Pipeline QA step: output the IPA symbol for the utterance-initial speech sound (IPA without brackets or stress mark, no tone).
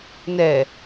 n